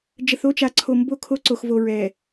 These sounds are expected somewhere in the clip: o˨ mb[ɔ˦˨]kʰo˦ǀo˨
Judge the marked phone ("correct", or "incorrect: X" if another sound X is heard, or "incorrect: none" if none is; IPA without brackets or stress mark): incorrect: o˦˨